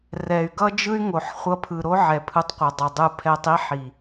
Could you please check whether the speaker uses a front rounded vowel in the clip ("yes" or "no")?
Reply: yes